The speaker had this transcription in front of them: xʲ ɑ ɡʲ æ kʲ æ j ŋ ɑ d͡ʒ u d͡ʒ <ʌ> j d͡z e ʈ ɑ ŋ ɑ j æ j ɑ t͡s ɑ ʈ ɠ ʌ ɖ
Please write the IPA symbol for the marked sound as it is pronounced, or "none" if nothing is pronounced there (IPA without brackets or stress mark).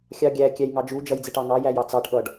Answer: ʌ